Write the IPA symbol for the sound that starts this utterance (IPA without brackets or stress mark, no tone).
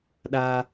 ɗ